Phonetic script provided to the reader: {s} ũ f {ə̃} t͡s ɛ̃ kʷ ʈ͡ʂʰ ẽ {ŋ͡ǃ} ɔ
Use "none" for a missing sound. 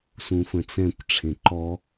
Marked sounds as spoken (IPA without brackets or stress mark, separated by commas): s, ə̃, ǃ